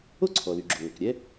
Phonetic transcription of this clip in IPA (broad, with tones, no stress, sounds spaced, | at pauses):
o˥ ǀʰ ɔ˩ l y˩ ɡ͡ǁ o˩ ŋ ɔ˩ k ɾʲ ɛ˥